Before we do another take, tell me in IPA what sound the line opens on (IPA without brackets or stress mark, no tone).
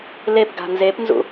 l